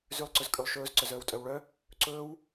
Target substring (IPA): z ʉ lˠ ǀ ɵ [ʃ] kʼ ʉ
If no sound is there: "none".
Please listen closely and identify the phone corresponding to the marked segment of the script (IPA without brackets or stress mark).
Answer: z